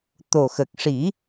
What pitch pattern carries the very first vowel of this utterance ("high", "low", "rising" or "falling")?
low